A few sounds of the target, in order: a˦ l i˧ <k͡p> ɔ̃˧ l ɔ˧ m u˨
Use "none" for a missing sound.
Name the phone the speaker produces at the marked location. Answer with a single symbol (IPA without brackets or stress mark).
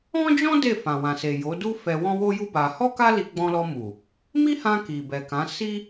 ɡ͡b